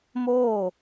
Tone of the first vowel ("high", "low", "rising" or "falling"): falling